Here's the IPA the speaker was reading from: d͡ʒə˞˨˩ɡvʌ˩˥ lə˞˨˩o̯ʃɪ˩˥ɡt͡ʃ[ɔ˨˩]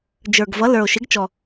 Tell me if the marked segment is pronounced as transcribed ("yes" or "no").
yes